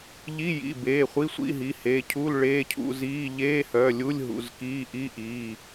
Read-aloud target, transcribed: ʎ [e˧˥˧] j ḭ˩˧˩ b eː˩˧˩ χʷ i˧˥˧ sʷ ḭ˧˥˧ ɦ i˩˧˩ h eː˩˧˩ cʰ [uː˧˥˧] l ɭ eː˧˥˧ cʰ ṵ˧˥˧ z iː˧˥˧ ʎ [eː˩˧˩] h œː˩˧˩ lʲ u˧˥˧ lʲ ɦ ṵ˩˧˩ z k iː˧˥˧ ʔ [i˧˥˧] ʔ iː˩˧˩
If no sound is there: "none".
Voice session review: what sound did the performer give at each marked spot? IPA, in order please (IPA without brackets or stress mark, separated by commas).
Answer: i˧˥˧, uː˧˥˧, eː˧˥˧, i˧˥˧